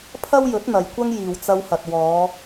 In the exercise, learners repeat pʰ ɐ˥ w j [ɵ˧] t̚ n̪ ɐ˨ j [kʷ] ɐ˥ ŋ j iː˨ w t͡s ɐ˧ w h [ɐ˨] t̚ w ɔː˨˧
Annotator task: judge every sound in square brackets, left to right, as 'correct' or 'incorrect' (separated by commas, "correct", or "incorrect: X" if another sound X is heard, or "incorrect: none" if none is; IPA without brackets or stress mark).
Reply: incorrect: ɵ˨˥, correct, correct